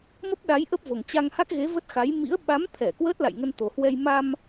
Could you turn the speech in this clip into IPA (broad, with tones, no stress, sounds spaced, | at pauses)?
m ə˦˥ p̚ ɗ a˨˦ j ʔ ə˦˥ p̚ v o˨˩ ŋ t͡ɕ a˧ ŋ h a˦˥ k̚ ɣ e˨˦ v ə˦˥ t̚ x a˨˦ j m ḭ˧˥ ə̯ ɓ a˨˦ m t̪ʰ ɛ˧˩ k w əː˦˥ t̚ l a̰˧˨ j ŋ ə˧ n t̪ o˨˩ h w ɛ˧ j m a˧ m